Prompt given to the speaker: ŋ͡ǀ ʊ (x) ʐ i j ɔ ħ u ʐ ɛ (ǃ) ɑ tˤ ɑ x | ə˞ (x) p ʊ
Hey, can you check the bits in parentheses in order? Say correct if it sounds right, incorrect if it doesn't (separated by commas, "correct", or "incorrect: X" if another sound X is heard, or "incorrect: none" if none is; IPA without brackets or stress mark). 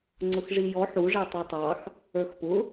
correct, incorrect: tˤ, correct